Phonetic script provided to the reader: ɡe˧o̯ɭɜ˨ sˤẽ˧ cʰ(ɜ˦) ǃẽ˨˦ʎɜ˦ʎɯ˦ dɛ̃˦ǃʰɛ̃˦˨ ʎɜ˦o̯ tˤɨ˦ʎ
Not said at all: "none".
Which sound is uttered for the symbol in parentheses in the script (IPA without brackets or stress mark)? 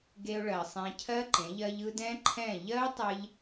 ɜ˦